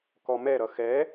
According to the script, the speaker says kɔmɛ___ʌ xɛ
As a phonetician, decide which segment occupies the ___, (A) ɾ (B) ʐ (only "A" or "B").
A